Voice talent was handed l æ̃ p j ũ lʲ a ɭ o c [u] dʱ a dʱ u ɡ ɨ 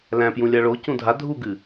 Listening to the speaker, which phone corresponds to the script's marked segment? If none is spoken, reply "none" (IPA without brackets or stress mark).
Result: ũ